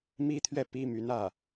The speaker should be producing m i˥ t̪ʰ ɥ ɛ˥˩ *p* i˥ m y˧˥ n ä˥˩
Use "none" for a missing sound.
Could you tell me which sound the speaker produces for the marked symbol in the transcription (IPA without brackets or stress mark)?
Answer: p